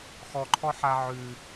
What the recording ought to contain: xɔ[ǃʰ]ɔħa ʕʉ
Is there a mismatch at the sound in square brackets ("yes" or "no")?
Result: no